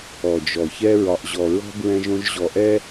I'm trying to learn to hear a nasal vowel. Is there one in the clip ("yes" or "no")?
yes